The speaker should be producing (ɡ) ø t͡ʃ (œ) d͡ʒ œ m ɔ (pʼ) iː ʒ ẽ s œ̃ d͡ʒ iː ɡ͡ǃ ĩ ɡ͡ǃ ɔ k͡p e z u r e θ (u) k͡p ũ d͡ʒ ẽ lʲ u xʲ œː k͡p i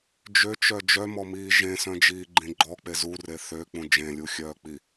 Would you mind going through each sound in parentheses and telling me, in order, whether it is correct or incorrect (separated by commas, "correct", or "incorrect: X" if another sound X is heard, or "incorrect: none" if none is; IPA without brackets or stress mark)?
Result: incorrect: d͡ʒ, correct, incorrect: m, incorrect: ø